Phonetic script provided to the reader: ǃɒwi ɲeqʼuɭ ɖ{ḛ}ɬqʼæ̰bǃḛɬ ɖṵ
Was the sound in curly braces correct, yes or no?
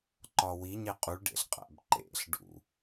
yes